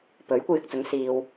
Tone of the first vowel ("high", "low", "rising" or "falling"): rising